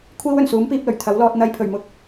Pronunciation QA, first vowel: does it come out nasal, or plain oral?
oral